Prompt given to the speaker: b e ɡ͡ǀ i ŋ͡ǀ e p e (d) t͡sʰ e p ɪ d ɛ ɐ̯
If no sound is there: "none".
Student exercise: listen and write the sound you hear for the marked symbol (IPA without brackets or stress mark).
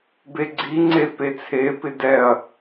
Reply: none